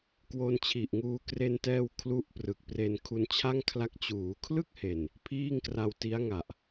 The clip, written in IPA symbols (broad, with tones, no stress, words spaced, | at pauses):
kwo˧nt͡ɕʰi˨˩ʔŋuː˧ kre˧ntɛː˧w kʰlu˦˥ʔprɯ˨˩k̚pre˧n kʰu˧nt͡ɕʰa˥˩ŋkʰla˦˥k̚ t͡ɕuː˩˦kʰlɯ˥˩k̚he˨˩n | pʰiː˥˩ŋkra˧w ti˦˥a̯ŋa˨˩ʔ